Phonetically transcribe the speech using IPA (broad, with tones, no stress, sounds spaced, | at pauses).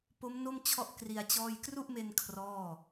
p o˦˥ m n o˥˩ m t͡ɕʰ ɔ˥˩ ʔ k r i˧ a̯ t͡ɕ ɔː˥˩ j k r u˥˩ ʔ m e˧ n kʰ r ɔː˥˩